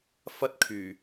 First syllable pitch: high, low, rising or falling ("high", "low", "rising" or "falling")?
high